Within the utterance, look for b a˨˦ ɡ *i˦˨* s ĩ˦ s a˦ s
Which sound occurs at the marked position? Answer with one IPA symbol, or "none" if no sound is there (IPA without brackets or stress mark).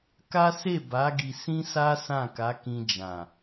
i˧